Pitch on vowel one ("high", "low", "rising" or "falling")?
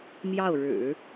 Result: falling